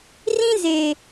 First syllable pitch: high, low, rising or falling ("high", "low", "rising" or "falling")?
high